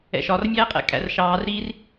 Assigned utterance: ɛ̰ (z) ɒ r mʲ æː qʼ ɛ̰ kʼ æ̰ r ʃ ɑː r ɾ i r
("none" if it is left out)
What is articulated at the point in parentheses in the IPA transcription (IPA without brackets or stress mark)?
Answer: ʃ